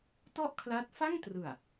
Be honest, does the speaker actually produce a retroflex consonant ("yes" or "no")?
no